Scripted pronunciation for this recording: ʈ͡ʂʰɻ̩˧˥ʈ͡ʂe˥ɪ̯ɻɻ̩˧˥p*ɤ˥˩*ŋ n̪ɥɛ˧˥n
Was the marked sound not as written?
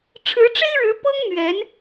yes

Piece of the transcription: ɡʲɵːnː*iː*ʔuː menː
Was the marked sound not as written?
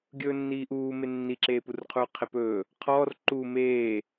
no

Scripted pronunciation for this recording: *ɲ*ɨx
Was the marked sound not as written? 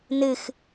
yes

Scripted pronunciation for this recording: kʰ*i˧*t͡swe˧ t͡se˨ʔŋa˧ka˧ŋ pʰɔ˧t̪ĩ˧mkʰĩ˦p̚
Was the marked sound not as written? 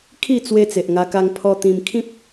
yes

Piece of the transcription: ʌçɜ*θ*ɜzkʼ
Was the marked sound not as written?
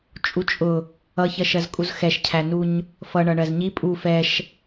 yes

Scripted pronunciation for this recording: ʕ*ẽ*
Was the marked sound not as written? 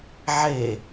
yes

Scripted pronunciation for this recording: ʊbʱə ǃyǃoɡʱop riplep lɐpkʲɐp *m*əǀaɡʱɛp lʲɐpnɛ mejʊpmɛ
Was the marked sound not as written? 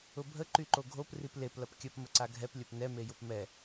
no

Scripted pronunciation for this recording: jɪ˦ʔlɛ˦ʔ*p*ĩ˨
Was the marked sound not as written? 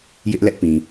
no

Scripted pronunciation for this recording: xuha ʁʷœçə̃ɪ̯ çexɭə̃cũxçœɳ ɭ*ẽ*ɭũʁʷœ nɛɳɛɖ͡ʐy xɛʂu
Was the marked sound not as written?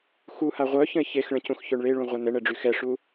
yes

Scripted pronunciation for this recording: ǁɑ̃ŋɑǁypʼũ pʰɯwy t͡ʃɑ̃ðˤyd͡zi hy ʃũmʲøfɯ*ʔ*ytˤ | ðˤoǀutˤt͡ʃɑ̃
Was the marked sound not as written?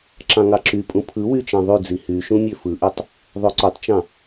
no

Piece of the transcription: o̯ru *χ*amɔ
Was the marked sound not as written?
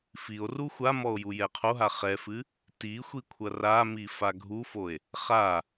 yes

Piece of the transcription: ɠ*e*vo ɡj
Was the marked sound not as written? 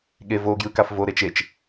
no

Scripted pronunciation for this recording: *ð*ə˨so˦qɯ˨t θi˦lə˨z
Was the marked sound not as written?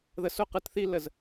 no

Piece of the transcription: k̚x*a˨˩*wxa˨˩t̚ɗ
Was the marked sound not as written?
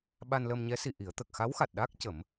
yes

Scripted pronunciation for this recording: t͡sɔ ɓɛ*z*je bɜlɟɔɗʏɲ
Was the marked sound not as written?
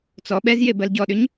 no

